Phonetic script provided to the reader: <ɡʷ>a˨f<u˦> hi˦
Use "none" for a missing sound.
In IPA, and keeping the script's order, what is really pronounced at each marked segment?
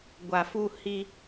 ɡʷ, u˦

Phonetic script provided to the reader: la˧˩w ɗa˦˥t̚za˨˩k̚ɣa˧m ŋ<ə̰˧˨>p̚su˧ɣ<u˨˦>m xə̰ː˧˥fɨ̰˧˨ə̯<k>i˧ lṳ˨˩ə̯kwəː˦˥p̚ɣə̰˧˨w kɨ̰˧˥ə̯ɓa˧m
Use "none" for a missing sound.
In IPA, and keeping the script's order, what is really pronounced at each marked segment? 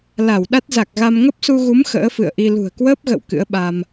ə˦˥, u˨˦, ʔ

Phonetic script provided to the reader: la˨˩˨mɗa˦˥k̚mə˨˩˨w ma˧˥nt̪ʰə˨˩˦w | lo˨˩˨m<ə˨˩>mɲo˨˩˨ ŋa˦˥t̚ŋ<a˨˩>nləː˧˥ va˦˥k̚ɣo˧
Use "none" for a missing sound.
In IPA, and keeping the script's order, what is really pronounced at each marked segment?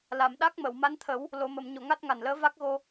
ə˨˩˨, a˨˩

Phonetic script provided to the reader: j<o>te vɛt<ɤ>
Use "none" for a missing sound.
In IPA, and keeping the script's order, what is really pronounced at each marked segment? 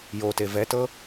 o, ɤ

